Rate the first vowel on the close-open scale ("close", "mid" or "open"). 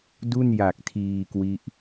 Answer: close